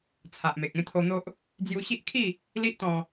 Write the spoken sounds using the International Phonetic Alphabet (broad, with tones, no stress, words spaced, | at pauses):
t͡sʰa˨ʔme˨k̚ ẽ˦t̪ʰo˧n̪o˦ʔ | d͡zju˧ɕi˦ʔkʰi˥˧ | li˦ʔt̪ɔ̃˧